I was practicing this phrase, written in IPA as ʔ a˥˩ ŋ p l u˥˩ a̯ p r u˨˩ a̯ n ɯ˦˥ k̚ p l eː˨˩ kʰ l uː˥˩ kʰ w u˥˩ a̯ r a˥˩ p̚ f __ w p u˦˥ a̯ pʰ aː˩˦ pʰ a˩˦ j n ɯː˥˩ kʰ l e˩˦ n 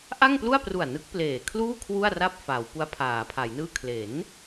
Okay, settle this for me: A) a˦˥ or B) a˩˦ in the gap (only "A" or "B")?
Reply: B